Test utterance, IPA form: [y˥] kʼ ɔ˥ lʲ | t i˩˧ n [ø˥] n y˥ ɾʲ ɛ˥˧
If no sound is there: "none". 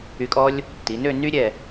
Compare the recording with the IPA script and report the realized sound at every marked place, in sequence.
y˧, ø˥˧

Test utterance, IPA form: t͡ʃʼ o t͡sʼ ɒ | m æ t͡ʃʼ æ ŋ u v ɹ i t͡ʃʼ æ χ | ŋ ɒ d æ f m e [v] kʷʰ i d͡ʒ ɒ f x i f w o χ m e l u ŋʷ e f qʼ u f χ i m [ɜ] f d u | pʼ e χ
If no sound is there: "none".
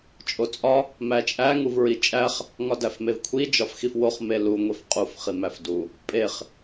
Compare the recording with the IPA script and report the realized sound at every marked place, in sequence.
v, æ

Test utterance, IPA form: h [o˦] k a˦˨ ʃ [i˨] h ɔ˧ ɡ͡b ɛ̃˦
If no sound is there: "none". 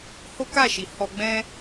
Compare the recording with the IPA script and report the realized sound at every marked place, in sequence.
o˦, i˨

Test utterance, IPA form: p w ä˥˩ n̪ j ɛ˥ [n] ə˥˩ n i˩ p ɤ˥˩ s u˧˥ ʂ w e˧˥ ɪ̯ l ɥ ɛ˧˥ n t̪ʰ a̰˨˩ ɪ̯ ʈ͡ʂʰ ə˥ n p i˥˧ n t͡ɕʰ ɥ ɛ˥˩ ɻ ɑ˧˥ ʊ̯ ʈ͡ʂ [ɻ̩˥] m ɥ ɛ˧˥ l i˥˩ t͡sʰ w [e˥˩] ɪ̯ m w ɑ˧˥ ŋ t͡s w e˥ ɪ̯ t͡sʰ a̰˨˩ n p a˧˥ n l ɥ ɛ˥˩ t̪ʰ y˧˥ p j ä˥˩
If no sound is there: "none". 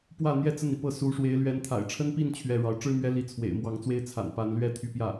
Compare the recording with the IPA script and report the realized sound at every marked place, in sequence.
t͡s, ɻ̩˥, ḛ˨˩

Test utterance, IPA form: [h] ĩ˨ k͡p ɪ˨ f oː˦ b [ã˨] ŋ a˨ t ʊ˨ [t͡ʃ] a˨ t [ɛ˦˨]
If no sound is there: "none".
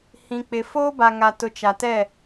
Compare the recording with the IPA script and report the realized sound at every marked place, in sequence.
h, a˨, t͡ʃ, ɛ˦˨

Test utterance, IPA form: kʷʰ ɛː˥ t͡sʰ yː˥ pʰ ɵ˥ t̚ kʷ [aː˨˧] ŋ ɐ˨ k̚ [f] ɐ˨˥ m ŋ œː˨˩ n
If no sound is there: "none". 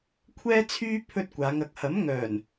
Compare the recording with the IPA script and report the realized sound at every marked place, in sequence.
aː˨˧, h

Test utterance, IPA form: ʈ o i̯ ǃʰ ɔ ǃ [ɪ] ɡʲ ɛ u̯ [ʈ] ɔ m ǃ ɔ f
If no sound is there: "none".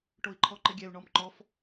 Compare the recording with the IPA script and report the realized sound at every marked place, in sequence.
ɪ, ɳ

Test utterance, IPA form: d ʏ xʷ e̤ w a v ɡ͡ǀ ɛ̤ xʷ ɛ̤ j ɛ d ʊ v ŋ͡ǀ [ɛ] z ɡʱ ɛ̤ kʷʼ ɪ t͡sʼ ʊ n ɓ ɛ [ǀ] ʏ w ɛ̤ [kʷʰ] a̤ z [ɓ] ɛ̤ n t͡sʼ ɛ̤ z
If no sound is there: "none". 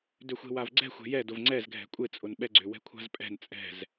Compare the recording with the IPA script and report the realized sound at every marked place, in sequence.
ɛ, ɡ͡ǀ, kʷʰ, pʼ

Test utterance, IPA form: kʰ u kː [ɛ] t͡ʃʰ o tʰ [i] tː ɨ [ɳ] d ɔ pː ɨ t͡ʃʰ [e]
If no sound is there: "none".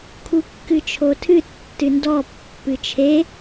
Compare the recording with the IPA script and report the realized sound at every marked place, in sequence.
ɨ, ɨ, n, e

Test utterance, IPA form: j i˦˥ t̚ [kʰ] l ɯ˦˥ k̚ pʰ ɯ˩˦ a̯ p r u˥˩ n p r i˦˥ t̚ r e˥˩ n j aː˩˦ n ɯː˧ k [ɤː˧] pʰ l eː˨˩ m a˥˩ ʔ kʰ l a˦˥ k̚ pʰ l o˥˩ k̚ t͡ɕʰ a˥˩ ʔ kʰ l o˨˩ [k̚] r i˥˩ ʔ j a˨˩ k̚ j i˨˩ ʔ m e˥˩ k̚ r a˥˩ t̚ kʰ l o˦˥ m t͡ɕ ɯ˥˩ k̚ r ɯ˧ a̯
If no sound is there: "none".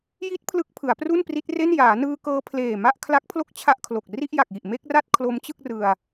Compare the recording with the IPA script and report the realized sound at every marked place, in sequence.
pʰ, ɤː˧, k̚

